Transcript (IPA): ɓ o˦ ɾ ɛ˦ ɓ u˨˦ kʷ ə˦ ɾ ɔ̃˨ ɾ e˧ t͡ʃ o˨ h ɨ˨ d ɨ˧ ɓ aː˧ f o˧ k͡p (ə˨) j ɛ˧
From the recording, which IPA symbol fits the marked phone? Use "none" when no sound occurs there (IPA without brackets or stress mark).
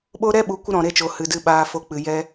ɨ˨